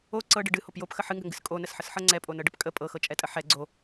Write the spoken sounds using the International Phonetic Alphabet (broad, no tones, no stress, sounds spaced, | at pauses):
o ǀ ɤ ɖ ɨ ɖ ɨ h o p j o p x ə ħ ɨ ŋ ɡ ə ŋ ɡ ɨ s kʼ o n ə s ħ ə s ħ ɤ ŋ͡ǀ ɛ pʼ o n ɤ ɖ ə p kʼ ə pʼ ɤ x ɤ t͡ʃʼ ɛ tʼ ə ħ ɛ ɡ͡ǀ o